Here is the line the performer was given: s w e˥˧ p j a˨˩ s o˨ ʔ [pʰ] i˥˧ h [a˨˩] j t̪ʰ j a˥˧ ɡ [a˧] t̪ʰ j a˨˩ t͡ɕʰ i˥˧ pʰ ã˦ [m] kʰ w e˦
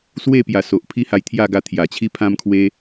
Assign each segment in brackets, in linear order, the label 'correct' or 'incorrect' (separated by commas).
correct, incorrect, correct, correct